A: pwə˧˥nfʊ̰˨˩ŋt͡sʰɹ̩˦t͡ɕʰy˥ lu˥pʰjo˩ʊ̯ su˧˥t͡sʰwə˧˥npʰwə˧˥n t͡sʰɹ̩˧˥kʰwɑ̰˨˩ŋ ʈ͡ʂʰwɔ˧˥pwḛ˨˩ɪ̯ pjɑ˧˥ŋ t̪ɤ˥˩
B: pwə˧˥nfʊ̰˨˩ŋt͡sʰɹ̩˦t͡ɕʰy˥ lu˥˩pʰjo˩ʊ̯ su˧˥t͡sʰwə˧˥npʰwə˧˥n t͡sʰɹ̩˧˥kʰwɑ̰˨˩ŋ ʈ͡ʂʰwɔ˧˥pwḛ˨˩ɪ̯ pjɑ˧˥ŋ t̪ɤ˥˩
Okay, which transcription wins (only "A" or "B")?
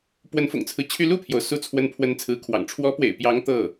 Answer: B